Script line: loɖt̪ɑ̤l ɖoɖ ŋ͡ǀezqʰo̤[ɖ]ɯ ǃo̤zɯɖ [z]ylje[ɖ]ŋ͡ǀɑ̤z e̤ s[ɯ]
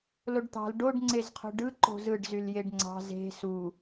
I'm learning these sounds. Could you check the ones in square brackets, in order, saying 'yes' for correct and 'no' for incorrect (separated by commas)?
yes, yes, yes, no